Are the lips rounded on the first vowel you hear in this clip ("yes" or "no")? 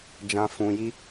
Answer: no